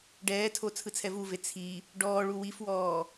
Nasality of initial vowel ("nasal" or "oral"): oral